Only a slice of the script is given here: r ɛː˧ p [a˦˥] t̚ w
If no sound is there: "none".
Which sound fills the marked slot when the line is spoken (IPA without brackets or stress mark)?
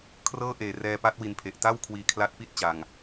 a˦˥